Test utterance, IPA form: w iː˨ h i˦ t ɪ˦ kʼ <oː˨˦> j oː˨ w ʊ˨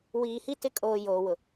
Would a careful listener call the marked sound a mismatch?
yes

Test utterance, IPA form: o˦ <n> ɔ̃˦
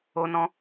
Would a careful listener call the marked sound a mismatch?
no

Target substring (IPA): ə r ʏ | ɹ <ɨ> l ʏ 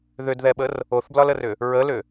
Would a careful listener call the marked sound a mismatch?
yes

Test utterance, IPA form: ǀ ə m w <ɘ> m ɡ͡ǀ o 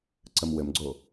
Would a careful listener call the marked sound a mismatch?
no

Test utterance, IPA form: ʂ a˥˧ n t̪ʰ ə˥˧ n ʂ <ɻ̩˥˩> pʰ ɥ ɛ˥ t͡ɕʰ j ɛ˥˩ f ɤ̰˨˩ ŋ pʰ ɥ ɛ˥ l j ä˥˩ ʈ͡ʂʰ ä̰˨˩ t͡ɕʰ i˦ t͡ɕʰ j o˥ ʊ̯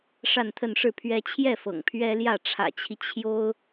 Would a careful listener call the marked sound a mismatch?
no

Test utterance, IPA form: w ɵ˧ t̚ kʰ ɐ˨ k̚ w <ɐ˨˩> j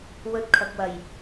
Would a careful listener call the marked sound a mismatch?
no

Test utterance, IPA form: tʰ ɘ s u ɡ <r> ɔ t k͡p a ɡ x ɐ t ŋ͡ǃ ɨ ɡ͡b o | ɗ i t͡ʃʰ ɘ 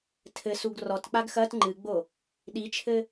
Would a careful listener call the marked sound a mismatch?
no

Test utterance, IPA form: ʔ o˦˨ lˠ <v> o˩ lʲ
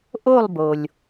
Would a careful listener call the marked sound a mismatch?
yes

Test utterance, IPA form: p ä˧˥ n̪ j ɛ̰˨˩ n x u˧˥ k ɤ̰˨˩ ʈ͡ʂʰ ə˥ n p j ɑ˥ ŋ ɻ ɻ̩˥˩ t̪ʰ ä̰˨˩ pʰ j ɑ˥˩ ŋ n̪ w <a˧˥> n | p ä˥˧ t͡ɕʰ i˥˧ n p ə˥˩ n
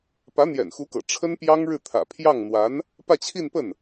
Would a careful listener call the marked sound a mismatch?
no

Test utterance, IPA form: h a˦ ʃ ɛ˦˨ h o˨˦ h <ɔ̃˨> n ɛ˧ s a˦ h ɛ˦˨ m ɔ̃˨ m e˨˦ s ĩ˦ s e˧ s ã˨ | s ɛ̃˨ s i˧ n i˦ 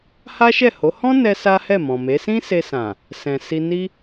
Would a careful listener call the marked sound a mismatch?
yes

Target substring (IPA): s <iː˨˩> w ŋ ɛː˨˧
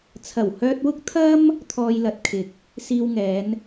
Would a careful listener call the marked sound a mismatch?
yes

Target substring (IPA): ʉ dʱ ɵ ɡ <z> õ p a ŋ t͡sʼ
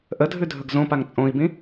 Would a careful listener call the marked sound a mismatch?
no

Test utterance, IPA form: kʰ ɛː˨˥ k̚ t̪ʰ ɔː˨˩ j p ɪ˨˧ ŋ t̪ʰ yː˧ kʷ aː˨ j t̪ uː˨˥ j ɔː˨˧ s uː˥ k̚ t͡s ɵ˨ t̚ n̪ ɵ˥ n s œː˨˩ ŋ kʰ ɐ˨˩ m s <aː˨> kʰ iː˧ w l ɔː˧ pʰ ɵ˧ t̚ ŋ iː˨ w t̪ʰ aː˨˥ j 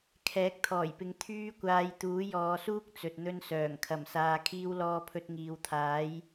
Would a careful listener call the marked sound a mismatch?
no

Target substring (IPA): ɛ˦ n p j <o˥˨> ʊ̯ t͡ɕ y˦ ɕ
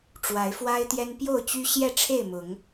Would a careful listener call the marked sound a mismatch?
no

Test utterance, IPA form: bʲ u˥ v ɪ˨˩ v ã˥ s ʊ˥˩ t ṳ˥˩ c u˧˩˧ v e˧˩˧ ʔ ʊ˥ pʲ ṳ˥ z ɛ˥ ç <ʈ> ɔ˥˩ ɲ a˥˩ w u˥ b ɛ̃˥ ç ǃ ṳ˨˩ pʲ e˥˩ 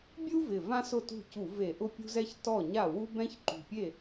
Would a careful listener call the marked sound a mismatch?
yes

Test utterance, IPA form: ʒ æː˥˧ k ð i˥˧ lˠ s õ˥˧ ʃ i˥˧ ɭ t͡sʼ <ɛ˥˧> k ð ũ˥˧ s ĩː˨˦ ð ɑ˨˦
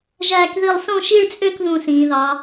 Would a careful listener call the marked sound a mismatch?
yes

